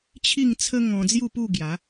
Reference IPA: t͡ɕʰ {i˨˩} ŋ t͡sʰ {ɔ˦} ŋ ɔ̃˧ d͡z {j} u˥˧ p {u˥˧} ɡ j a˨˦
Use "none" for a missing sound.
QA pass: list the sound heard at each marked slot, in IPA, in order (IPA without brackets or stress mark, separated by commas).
i˥˧, ə˦, j, u˥˧